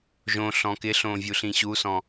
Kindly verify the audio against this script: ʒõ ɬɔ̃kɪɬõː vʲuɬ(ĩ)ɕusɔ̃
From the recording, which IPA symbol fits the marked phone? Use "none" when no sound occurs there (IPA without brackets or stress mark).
ĩ